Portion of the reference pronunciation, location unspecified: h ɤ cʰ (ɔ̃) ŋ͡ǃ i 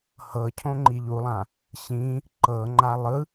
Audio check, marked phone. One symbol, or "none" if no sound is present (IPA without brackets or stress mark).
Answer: õ